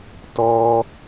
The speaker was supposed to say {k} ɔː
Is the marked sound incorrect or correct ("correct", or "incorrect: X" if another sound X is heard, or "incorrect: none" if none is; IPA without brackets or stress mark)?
incorrect: t